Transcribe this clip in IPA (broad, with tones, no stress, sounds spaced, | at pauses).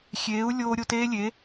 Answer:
xʲ eː˨˦ u̯ lʲ oː˦ ɾʲ o˦ t eː˦ lʲ e˨˦